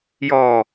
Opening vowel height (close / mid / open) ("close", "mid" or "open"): mid